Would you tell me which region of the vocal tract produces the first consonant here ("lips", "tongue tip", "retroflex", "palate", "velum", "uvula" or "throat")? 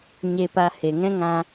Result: palate